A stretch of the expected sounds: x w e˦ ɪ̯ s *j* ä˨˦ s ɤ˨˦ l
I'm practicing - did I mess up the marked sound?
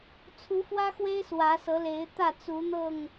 yes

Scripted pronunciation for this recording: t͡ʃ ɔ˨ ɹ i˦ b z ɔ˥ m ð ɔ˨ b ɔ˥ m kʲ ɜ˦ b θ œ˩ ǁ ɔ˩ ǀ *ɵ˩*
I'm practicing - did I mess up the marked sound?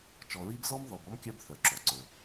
no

